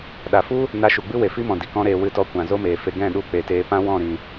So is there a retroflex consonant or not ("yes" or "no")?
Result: no